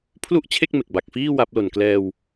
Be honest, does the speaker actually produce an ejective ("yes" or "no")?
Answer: no